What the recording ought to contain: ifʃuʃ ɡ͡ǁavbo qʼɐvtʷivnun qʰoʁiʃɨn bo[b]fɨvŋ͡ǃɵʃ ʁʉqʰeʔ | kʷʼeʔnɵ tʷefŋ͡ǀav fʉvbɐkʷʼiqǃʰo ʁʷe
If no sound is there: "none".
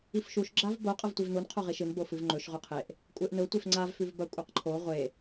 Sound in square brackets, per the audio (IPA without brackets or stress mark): none